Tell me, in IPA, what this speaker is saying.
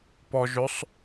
p ɔ ʒ ɵ sˤ

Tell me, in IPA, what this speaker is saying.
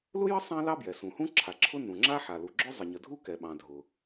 l ʊ˥ j ə˥ sˤ ɑ̃˥ l ɑ˥ b j ɛ˩ s ũ˩ h ũ˥ ǁʰ a˩ ǁʰ ʊ˥ n ũ˩ ŋ͡ǁ a˥ ħ a˩ l u˩ ɡ͡ǁ ʊ˥ zˤ ə˩ ɲ ə˩ dʱ u˥ k ɛ˩ ɓ ɑ̃˩ dʱ ʊ˩

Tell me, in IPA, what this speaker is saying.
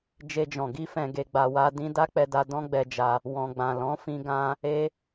d͡ʒ e˧ d͡ʒ ɔ̃˨ ɡ i˧ f ɛ̃˨ ɡ e˨ ɡ͡b a˨ w a˧ d ĩ˦ d a˦ k͡p ɛ˧ d a˧ d ɔ̃˦ ɡ͡b ɛ˧ d͡ʒ a˧ | w ɔ̃˨ ɡ͡b ã˨ l ɔ̃˨˦ f ĩ˧ ɡ ã˦ | e˦

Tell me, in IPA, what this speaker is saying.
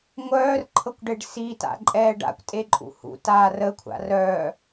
ŋʷ œː r ǃʰ ɤ kʷ ɖ e ɖ s i t a̰ ǃʼ ɛː ɖ a̰ kʷ tʼ e ǃʼ ṵ h ṵ t aː r ə kʷʰ a̰ r œ

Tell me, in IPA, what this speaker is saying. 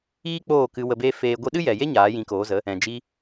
iː˦ k͡p oː˦˨ k ɨ˧ w ə˧ b eː˦ f eː˧ ɡʷ i˧ ɗ ɨ˦ j ɛ˨ j e˦ ɲ aː˨˦ j ĩ˨˦ k oː˨˦ z ə˨˦ | ɛ̃˨ d͡ʒ i˧

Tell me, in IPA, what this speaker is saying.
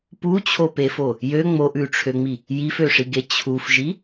p u t͡ɕʰ o p e f o | j ø ŋ͡m o ʔ ʉ ʈ͡ʂʰ ø ŋ͡m i | j i f ø ʂ i ɡ e t͡ɕʰ u f ʒ i

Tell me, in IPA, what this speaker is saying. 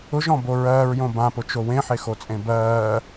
ʊ ʒ ɔ̃ b o ɹ ɜː ɹ j õ b ã p ʊ t͡ʃ o w ẽ ħ e x o t͡sʼ ẽ b ɜː

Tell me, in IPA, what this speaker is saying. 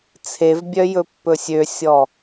t͡sʰ e v bʲ œ j ɵ pː ɵ sʲ ø sʲ ɔ

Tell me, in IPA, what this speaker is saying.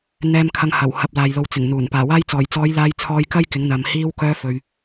n̪ ɛː˨ m kʰ ɐ˨ ŋ h ɐ˨˩ w h ɐ˨ p̚ l aː˨ j l o˨˧ w t͡s ɪ˨˩ ŋ n̪ uː˨˩ n p aː˨˩ w aː˧ j t͡s ɔː˨˩ j t͡s ɔː˨˧ j l aː˧ j t͡sʰ ɔː˧ j k ɐ˥ j k ɪ˨˥ ŋ n̪ ɐ˨ m h iː˧ w k œː˧ f ɵ˨ ɥ

